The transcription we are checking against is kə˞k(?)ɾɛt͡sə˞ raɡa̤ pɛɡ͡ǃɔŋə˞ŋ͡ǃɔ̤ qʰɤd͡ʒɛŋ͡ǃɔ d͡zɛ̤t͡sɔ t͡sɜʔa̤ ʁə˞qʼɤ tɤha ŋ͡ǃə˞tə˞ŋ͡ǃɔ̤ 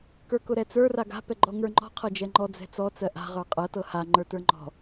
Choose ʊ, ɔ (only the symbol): ʊ